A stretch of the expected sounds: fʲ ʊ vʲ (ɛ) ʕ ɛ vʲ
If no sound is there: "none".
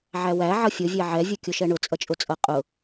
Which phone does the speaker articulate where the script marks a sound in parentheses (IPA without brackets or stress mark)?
ɛ